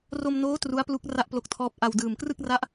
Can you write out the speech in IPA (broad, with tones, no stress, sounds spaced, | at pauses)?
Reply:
r o˧ m n oː˦˥ t r u˦˥ a̯ p l u˦˥ k̚ r a˥˩ ʔ p l o˦˥ k̚ tʰ ɔː˦˥ p̚ ʔ a˧ w d ɯː˨˩ m k r ɯ˥˩ k̚ r a˦˥ ʔ